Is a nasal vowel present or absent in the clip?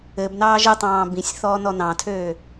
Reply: present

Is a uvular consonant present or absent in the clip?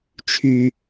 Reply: absent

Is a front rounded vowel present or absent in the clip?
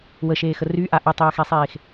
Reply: present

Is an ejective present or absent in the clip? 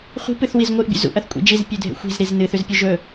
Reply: present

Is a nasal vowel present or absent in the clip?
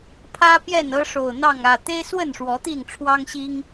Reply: absent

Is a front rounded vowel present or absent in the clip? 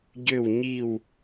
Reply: present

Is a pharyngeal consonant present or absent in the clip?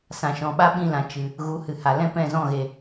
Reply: absent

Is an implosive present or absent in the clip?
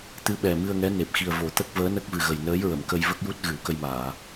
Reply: present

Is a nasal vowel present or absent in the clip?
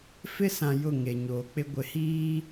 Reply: present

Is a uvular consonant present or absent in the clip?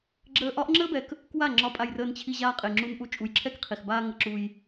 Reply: present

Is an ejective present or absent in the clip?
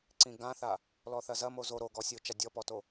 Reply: absent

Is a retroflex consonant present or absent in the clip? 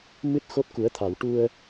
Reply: present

